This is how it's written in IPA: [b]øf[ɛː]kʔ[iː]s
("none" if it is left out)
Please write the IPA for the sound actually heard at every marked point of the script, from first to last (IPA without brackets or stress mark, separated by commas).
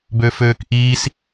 b, øː, iː